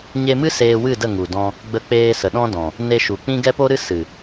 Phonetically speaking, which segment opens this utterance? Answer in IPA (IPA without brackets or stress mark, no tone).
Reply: ɲ